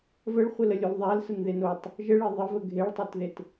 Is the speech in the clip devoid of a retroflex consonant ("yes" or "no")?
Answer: no